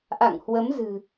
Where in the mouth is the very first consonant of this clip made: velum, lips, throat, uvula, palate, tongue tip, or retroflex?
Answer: throat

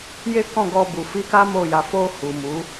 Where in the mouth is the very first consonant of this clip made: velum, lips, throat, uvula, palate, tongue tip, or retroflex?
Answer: palate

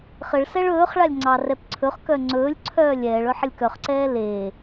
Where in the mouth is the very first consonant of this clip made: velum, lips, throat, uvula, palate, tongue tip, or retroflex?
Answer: uvula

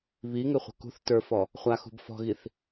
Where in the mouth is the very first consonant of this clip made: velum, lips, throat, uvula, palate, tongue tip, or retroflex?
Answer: lips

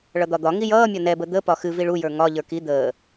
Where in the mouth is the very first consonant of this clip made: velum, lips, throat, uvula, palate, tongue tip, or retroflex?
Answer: retroflex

